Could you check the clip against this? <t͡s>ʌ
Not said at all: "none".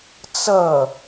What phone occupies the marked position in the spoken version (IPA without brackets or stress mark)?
t͡s